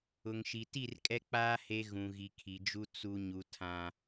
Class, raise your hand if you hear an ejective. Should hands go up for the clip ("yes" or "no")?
yes